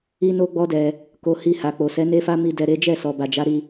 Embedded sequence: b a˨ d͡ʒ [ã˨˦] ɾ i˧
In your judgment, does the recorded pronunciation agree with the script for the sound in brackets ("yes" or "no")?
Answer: no